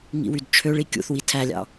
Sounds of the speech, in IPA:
ŋ ḭ w y d t͡ʃʰ ø ɭ i kʲ ṵ θ w i tʰ æ lʲ ɑ̰

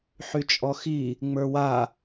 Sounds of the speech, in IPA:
ħ y t͡ʃʼ ɔ x i | ŋ͡m ə˞ w a

